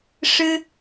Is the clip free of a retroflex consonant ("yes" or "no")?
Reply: no